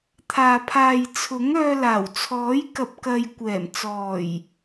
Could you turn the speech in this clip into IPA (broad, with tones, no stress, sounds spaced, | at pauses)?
t̪ʰ aː˨ pʰ aː˨ j t͡sʰ ʊ˨˥ ŋ œː˧ l aː˨˩ w t͡sʰ ɔː˨˥ j k ɐ˨ p̚ k ɐ˨ j kʷ ɛː˨˩ m t͡s ɔː˨˩ j